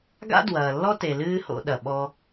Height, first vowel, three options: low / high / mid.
low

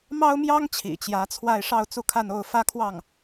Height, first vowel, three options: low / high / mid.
low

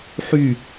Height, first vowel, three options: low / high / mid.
high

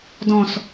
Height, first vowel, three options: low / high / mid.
mid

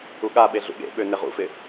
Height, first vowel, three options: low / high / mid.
high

